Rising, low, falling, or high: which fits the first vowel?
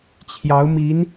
rising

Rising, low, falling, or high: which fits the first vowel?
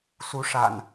rising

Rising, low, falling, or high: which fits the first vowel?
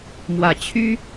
low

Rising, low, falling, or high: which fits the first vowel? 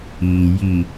low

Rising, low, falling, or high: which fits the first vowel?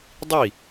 falling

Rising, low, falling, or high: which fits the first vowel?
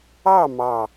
falling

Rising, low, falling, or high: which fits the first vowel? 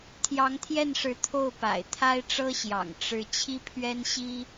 rising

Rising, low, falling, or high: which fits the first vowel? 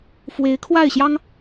rising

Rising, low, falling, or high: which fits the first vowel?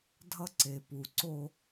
high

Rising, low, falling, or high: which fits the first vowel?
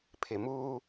low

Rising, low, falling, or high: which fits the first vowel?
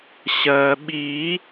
low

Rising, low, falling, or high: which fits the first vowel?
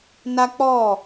high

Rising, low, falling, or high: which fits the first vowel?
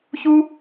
high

